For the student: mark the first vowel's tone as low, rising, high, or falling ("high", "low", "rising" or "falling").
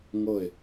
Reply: falling